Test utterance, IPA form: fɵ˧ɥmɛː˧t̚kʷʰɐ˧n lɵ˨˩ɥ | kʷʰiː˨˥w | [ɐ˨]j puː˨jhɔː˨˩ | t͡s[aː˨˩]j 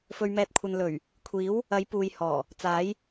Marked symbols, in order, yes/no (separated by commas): no, no